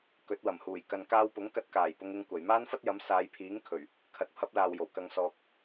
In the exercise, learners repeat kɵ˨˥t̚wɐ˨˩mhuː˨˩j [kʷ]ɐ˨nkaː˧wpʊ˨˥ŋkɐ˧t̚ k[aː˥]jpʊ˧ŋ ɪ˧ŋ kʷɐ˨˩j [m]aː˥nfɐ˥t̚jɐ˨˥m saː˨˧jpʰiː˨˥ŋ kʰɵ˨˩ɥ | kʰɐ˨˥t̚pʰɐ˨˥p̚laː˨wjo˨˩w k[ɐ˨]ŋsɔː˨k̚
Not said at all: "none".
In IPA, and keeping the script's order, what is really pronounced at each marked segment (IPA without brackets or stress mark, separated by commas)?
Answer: k, aː˨˩, m, ɐ˨